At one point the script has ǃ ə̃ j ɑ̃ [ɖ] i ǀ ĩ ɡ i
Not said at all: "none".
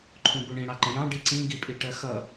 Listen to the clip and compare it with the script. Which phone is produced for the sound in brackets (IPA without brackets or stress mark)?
ɖ